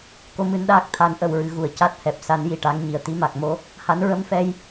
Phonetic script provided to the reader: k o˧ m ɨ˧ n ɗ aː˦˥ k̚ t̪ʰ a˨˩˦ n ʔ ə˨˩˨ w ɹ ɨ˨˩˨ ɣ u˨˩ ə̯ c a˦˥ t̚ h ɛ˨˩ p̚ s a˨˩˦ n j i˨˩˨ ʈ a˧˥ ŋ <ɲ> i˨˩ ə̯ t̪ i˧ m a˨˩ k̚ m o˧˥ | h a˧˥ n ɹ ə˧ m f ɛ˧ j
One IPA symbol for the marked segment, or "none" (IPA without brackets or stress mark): ɲ